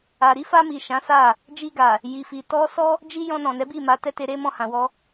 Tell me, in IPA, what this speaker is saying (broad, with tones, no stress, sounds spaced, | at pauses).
a˨ ɾ i˨˦ f a˧ m i˨ ʃ ã˨˦ s a˦˨ | d͡ʒ i˧ ɡ a˨ | j i˨ f i˨ t ɔ˧ s ɔ˦ | d͡ʒ i˦ j ɔ̃˧ n ɔ̃˨ n ɛ˨˦ b i˦˨ m a˧ t ɛ˦ t e˧ ɾ e˦ m ɔ̃˧ h ã˨ w ɔ˧